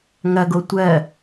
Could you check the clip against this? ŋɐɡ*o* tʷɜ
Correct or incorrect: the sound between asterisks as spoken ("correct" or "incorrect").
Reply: correct